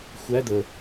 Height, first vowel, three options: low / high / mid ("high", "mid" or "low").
low